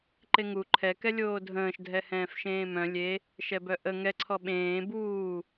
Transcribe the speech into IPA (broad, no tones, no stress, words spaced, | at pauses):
ǃeŋu ǃʰɛ kɛlʲoːdʱə̃ːʃ dʱɛhɛ̃ːfʃẽːmœ̃ lʲe | ʃɛbœʔə ŋɛ ǀʰɔɓẽː buː